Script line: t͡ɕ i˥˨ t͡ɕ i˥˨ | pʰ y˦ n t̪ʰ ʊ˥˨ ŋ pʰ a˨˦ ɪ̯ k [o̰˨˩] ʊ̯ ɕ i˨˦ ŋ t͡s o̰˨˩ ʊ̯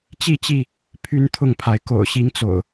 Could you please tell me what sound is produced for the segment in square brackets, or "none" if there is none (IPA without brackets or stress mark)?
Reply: o̰˨˩